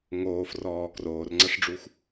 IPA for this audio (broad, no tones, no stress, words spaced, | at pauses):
ŋoːfrɔː kroːrŋ͡ǀɐʂɖ͡ʐuxʷ